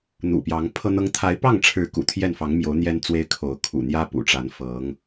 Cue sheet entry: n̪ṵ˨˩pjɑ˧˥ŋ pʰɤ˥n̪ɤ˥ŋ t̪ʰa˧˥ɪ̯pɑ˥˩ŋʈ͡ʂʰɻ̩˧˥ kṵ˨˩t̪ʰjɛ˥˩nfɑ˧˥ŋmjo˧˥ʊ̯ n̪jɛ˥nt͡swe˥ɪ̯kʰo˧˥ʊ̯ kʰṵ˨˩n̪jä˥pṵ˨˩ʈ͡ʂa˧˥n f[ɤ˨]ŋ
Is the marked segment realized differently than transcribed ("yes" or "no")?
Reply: yes